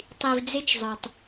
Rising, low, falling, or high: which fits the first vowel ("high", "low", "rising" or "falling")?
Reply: low